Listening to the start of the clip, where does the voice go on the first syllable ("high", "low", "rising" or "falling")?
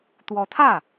rising